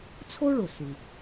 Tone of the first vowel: high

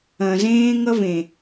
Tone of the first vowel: low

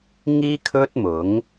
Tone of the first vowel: high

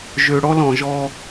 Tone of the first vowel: low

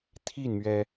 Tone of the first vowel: falling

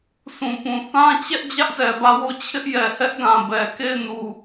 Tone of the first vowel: low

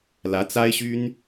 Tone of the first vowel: rising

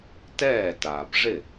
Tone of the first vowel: falling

